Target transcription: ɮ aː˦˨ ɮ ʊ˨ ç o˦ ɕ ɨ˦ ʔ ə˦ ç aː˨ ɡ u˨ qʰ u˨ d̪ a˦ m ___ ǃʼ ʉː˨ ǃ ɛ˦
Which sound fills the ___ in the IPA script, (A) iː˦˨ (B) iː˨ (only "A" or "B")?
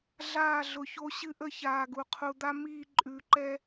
A